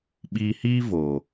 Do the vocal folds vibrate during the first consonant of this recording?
yes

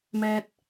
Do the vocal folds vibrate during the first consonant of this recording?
yes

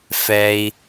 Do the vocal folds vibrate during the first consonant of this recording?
no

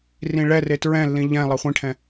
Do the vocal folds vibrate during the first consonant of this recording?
yes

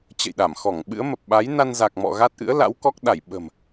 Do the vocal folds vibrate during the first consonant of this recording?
no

